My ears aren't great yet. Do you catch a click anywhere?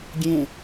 no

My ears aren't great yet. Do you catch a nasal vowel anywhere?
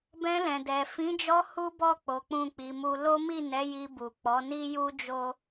yes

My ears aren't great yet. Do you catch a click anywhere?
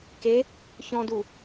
no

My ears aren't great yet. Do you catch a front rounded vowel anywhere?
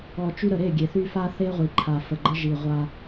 yes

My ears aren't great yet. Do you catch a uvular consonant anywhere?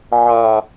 no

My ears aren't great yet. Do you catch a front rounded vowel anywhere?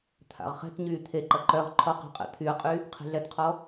yes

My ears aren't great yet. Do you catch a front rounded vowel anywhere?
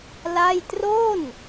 no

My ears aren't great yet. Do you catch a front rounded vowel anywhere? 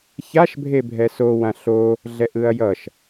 no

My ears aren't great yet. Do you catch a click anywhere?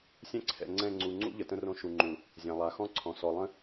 yes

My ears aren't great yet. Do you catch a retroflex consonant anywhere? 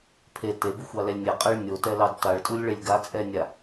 yes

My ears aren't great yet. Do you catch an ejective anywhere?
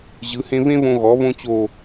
no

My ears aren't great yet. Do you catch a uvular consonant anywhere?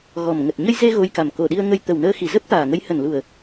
no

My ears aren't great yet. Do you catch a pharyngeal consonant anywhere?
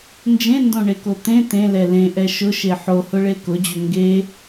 yes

